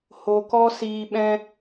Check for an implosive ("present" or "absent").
present